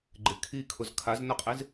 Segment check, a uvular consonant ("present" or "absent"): present